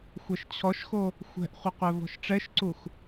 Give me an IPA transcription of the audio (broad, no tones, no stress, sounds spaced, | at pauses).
xʷ ɛ ʃ t͡ɕʰ ɔ ʃ x o | xʷ ɛ̤ ʔ χʷ ə qʷ ɛ v ɔ̤ ʃ ʈ͡ʂ ɛ ʃ ǀ u x